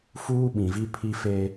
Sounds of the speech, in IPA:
fuː˦ɓĩ˨vi˦ pʰi˦fe˦

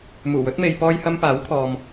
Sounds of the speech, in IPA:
muː˨˩wɵ˨˥t̚me˨jpɔː˧j hɐ˧m paː˨˥wkʰɔː˨m

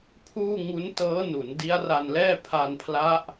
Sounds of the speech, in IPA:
pʰuː˥˩ ŋu˦˥ntɤː˦˥nu˩˦n di˦˥a̯ra˧nlɛː˥˩ pʰa˧npʰla˦˥ʔ

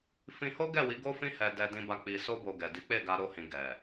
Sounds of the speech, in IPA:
fĩ˧ho˦ɡɛ˦˨wi˨˦ ɡo˦fĩ˦ hɛ˧ dɛ˧dĩ˧ba˧ k͡pi˧so˦bo˧ ɡɛ˨di˨˦k͡pe˦˨ɡa˧ ɾo˦hĩ˧ ɡɛ˨

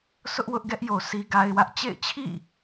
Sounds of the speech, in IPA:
sʊ˦ʔwʊ˦ʔɡɛ˦ʔjo˨ sʰi˦ɡa˦ɪ̯wä˦ʔ t͡ɕḛ˦˨ɪ̯t͡ɕʰḭ˦˨

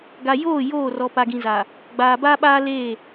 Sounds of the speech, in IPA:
ɡa˨joː˦˨ joː˦˨rɔ˨ pa˨ɡĩ˨za˨ | ɡ͡baː˨ baː˦ɓaː˦leː˦˨

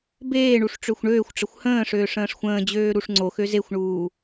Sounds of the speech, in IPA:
beːɳuʂ ʈ͡ʂøxʷɳøːxʷʈ͡ʂəxʷ hə̃ːʂøːʂ ə̃ːʂxʷə̃ːd͡ʑøː ɾuʂŋ͡ǀoxø zexʷɳuː

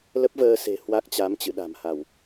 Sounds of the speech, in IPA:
lə˦˥p̚vəː˧ se̤˨˩ hwa˦˥k̚t͡ɕa˨˦m t͡ɕɨ̰˧˨ɗa̤˨˩mha˧˩˨w

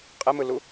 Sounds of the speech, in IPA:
qʼemɯlu

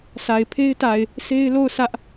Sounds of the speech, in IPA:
sa˨ɪ̯pʰe˦ɪ̯ta˨ɪ̯ | sʰe˦ɪ̯lo˦˨ʊ̯ sä˦ʔ

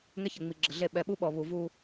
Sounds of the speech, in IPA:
ŋɛ˦çə˨ ŋ͡mi˨ɡ͡ǁə˨ɮe˦˨ ɓɛ˨ɓu˦ɓɔ˨ βu˨vu˦

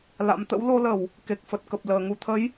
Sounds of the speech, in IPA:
la̰˧˥m t̪ə̰˧˥wlo˧lə˧˩˨w | ke˨˩k̚fə˨˩t̚kə˨˩p̚ ləː˨˩ŋu˧ t̪ʰə˨˦j

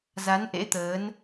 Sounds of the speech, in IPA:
za˨˦nʔḛ˧˥t̪əː˨˦n

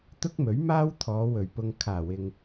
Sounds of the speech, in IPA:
t̪ʊ˥k̚mɵ˨˥ɥmaː˥wt̪ʰɔː˨˧ wɵ˨˩ɥpʊ˨ŋ kʰaː˨˩wɪ˨ŋ

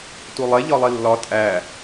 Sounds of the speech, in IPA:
tulˠe ʎɒlˠilːɒ tʼæ

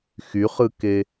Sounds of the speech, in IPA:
xyχɯke

